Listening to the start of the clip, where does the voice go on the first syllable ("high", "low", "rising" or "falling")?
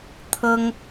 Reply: high